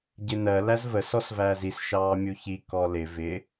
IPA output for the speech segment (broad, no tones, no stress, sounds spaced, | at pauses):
ɟ ɪ n ɜ l æ z v ə s ɔ s v æː z i s ʃ ɑː mʲ u ç i k ɔ l ɪ v ɪ